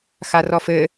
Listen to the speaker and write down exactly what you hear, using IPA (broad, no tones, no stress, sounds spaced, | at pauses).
x a r ɔ f ɘ